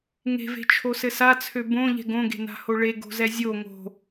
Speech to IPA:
ŋe̤ve̤t͡ʃʰosɘ sat͡sʰø bõʎɛ̤ ɡõɡe̤na̤ho ɭeɡo̤zɛ zʲo ŋo̤

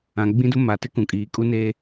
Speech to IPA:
ã˨ ɡ͡bĩ˦dʊ˦ ma˨tɪ˦ kũ˨kʼiː˨ kʼu˦neː˦

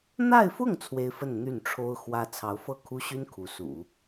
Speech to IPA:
n̪a˥˧ɪ̯fʊ˥˩ŋ t͡sʰwe˥ɪ̯fə˥˧n n̪y˥˩nʈ͡ʂʰo˥ʊ̯xwä˥ t͡sʰɑ˧˥ʊ̯fɤ˥˩kʰu˥ɕy˥n kʰu˧˥sṵ˨˩˦

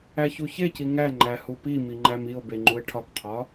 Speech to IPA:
æçuçeci ŋæŋ͡ǃæ hupimi ŋ͡ǃæmio̯be ŋ͡ǃue̯ʈʰɒkqʰɒ

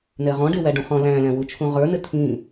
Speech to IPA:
nɛʁɔ̃ ɖewæɖũχɔ̃ læ̃læ̃wu t͡ʃʰũʁə˞nɘ tʰĩ

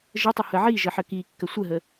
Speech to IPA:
ʒətˤə həʕi ʒəħəkikːə sʷəɦə

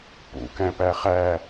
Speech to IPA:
pṵ kæ̃pæχæ

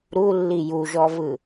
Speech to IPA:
ɾulːi juʒɔvɯ

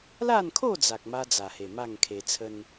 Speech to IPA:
la˥˧nkʰo˥˧d͡za˨k̚ ma˦d͡za˨˩he˨˩ ma˥˧ŋkʰe˧t͡sʰə˦n

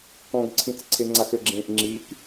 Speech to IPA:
kɔ̃ɡǀʰĩt͡s ǀʰeŋ͡ǀaxɘɡ͡ǁẽːʔ ŋ͡ǁik

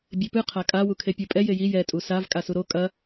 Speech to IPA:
bʲepɨ qʰakʼa wukʰepʲɘ pʼɛ jeji jɛ tʼusav kʼasuɾo kʼɐ

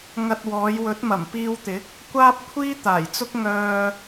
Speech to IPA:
ŋɐ˧t̚wɔː˨˧jwɵ˨˥t̚mɐ˨˩m piː˧wt̪ɪ˨˥k̚ | kʷaː˥p̚kʷʰiː˥t̪aː˨˩jt͡sʊ˥k̚ ŋœː˧

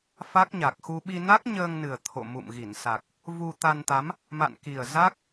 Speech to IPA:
fa˦˥k̚ɲa˨˩k̚xu˧ ɓi˧na˦˥k̚ɲəː˧ŋnɨ˨˩ə̯ t̪ʰo̰˧˨mṵ˧˨mɣi˧˩nsa˨˩k̚ | vu˧ t̪a˧nt̪a˨˦m | ma̰˧˨nki˨˩ə̯ za˦˥k̚

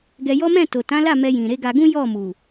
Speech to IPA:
ɡɛ˧jɔ˦ mɛ̃˦˨to˨tã˨˦la˦˨ mɛ˧jĩ˨ ɾe˨˦ɡa˧ɡũ˦ jɔ˦˨ mu˨

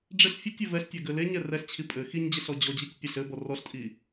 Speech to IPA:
ɖ͡ʐɪɬ fʲɘtʲe vɛɬtʲɛɡɘ leɲɛ rɛɬt͡ɕʰi pʼɘ xiɲd͡ʑɛɬɔ d͡ʑɔd͡ʑitʲ pʲəɬ ɘbɔ rɔɬtʼi

